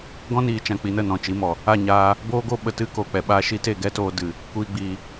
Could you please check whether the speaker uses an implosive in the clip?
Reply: yes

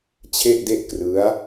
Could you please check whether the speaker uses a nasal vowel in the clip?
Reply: no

